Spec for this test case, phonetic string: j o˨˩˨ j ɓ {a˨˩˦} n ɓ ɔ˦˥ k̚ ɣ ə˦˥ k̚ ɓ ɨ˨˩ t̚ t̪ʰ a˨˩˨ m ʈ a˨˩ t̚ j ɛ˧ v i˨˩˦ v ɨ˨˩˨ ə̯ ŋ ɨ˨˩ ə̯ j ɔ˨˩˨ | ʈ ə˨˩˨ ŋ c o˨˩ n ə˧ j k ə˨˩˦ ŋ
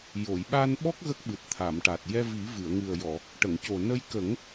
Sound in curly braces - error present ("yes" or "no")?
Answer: yes